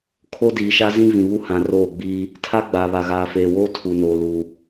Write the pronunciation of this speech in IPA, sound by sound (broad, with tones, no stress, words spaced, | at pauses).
kʰo˦diː˨ʃa˦zĩ˦ vĩ˨βu˦ hã˨ roː˦˨ɡ͡biː˦ | tʰa˦ɡ͡ba˨ βa˨ɣaː˨feː˨woː˦ tʰu˨noː˨luː˨